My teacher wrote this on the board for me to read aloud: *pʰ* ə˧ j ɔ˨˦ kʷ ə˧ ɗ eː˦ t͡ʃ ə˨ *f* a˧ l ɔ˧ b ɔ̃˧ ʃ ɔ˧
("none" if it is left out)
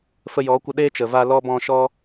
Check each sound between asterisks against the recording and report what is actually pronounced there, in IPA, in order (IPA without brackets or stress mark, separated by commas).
f, v